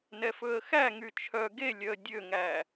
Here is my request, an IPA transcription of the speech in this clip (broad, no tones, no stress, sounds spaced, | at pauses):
n ɛ f ɵ ə̯ x æ ŋ y t͡ʃʰ œ ɡ e lʲ œ ə̯ dʲ ø ŋ æ